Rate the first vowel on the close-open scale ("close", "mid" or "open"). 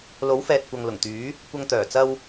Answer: mid